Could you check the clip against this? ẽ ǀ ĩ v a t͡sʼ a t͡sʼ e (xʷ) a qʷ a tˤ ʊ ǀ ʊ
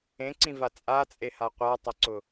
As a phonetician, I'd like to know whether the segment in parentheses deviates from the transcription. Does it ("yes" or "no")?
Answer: yes